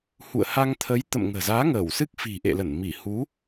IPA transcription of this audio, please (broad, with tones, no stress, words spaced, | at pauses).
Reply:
hṵ˧˨ə̯ha˧ŋt̪ʰə˨˦j t̪ə̰˧˨mŋə̤ː˨˩zaː˨˦ ŋəː˧˩wsɨ˦˥k̚fi̤˨˩ ʔḛ˧˨lə˧˩n mi˧˩hu˨˦